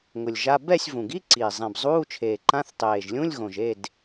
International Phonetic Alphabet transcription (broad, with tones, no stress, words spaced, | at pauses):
ŋʊ˨˩lʲʒa˧˥˧ bɛ˥˨sʲ vũ˨˩ɡi˧˥˧ǀiː˨˩ zˤẽ˨˩bzˤuː˧˥˧t͡ʃʰeː˨˩ǃã˧˥˧θ tˤeː˨˩ʒlʲũ˧˥˧lʲɣõ˨˩ʒ e˥˨d